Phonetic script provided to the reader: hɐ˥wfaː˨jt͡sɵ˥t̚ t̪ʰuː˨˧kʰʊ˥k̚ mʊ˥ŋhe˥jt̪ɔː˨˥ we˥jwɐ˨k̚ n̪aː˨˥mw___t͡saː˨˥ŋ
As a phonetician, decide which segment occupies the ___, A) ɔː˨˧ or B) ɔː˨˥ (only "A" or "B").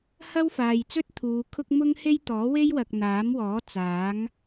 B